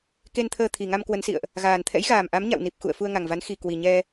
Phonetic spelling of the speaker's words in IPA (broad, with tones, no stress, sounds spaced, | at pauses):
k e˧ n t̪ʰ əː˧ t̪ʰ i˨˩ ŋ a˧ m k w ə˨˦ n s ḭ˧˨ ə̯ ʔ | ɣ aː˨˩ n t̪ʰ ɛ̰˧˥ j ɣ aː˨˩ m ʔ a˨˦ m ɲ a̰˧˨ w n i˨˩ p̚ x ṵ˧˨ ə̯ f u˧ ə̯ ŋ a˨˩ ŋ v a˨˦ n x i˨˩ k w i˨˩ ɲ ɛ˧